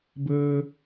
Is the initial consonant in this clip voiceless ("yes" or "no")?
no